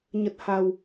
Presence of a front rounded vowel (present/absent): absent